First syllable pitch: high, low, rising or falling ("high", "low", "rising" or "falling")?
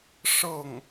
falling